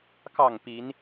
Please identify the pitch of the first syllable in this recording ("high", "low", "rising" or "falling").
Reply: falling